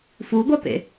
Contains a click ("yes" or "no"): no